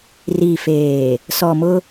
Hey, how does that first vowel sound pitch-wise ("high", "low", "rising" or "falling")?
low